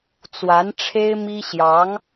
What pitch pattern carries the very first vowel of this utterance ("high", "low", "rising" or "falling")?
rising